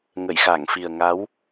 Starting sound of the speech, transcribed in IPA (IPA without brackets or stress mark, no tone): ŋ